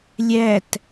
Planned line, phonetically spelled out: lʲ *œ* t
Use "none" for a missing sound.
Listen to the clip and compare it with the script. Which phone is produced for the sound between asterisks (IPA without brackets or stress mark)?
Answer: æ